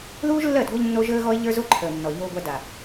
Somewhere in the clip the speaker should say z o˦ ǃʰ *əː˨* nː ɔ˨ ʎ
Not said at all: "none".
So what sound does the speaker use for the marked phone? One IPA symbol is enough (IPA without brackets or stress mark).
əː˨